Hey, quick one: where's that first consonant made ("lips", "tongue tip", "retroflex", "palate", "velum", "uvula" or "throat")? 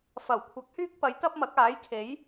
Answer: lips